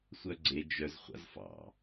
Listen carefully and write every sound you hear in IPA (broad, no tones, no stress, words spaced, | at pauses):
sʷœɡ͡ǀe d͡ʒœz χʷa̰zfɑ̰